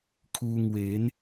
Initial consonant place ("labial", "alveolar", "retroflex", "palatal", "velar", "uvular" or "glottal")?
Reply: velar